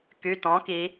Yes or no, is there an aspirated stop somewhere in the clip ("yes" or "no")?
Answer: no